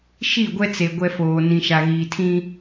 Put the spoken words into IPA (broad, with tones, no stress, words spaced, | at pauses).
ʃi˦˨ɡʷɛ˦t͡se˨ ɡʷɛ˦foː˨ nĩ˨ʃa˨ɣiː˨tʰĩ˦